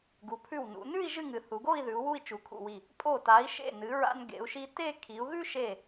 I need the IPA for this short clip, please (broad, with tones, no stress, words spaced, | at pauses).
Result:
ɡu˩˧pʰʉ˧˩wnṵ˩˧ nʉ˥˧i̯ ʒɨ˥˧ŋɨ˩˧ θu˩˧ɡo˥˧i̯ðʉ˩˧u̯ wu˥˧i̯t͡ʃu˩˧kʰṵ˧˩wi˧˩ | pʼo˧˩ta˩˧i̯ ʃḛ˧˩nɨ˩˧ɹa̰˧n ɡḛ˩˧u̯ʃi˧te˥˧ kʰi˩˧u̯ɣʉ˥ʃe˧˩